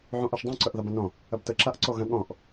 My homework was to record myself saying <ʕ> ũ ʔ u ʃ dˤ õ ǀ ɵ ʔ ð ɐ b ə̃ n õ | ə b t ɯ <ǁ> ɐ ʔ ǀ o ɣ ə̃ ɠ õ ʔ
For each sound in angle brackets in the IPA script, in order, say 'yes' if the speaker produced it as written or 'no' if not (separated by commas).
yes, yes